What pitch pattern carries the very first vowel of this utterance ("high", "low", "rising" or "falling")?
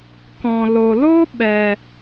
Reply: low